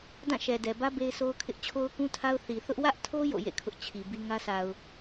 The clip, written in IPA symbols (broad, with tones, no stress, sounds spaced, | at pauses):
d ã˦˨ ʃ ɛ˨ d ɛ˨ b ä˦ b e˦ ɪ̯ s o˦ ʊ̯ kʰ ɪ˦ ʔ t͡ɕʰ o˦ ʊ̯ k ũ˦ tʰ a˦ ʊ̯ θ i˨ θ ʊ˦ ʔ w ä˦ ʔ tʰ o˦ j o̰˦˨ j ḛ˦˨ kʰ ʊ˦ ʔ t͡ɕʰ i˨ b i˦ ŋ ä˦ s a˨ ʊ̯